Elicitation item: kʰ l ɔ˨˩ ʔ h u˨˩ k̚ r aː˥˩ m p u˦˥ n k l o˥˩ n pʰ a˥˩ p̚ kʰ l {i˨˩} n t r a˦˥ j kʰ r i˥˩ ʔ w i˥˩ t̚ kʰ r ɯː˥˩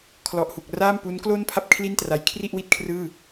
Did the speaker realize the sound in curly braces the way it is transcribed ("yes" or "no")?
no